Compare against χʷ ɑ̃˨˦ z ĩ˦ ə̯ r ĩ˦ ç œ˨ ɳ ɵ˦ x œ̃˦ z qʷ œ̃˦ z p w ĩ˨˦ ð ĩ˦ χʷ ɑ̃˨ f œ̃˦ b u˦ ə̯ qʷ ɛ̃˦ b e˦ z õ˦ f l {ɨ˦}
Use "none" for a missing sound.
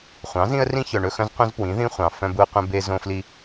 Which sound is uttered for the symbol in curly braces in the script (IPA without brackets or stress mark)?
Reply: i˦